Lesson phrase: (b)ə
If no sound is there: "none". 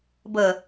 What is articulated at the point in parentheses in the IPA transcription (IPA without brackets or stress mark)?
b